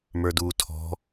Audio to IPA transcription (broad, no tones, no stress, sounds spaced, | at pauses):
m ə˞ d uː tʰ ɔ̤